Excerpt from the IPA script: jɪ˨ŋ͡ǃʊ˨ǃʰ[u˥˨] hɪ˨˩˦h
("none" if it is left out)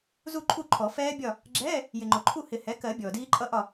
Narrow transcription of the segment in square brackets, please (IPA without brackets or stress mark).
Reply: u˥˨